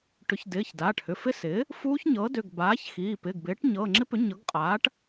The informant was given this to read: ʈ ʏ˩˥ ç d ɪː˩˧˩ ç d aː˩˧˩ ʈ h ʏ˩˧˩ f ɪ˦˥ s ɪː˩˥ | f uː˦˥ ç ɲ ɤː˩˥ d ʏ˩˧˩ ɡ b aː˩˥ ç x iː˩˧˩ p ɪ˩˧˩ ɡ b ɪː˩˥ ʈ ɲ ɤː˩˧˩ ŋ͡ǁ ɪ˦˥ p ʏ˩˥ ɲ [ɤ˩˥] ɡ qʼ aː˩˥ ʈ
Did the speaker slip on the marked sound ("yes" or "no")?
no